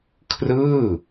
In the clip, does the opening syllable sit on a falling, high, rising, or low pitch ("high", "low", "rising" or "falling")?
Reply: falling